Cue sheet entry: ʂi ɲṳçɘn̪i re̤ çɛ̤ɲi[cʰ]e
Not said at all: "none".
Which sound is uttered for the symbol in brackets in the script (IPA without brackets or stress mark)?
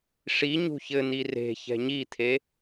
t̪ʰ